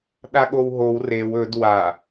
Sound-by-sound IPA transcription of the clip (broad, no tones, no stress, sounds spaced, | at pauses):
ɗ a ɠ o w ɦ o w r e w ɵ d w a